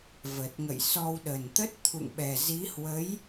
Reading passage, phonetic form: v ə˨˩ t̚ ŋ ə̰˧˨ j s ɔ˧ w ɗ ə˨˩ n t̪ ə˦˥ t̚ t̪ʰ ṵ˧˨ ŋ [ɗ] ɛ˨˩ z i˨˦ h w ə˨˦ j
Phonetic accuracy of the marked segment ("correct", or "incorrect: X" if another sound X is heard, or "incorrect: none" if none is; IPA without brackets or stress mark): incorrect: ɓ